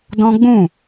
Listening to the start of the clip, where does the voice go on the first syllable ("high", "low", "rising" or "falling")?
high